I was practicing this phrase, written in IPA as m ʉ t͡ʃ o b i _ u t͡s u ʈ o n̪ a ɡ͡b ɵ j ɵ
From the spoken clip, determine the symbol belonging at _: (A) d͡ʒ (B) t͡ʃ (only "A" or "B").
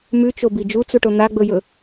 A